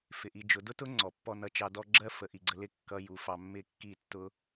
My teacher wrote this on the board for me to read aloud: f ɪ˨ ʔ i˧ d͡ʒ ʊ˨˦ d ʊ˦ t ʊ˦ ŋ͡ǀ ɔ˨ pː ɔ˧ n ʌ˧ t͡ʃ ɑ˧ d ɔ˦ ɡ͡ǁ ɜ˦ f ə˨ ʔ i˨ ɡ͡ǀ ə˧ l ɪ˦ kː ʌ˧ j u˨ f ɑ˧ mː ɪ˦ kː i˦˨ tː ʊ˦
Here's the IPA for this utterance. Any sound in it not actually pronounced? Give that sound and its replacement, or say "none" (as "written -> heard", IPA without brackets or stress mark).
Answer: none